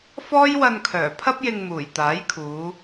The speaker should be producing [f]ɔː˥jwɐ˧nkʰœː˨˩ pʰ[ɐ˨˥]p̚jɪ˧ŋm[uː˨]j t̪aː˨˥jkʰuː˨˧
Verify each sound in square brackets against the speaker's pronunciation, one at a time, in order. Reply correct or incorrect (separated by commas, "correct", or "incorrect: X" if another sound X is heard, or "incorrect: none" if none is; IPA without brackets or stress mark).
correct, incorrect: ɐ˥, incorrect: uː˨˩